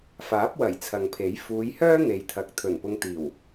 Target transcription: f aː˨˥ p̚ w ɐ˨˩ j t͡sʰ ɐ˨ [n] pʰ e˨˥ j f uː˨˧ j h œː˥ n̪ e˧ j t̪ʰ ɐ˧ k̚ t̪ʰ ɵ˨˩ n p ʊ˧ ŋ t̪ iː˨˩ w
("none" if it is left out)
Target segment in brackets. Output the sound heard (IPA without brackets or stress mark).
ŋ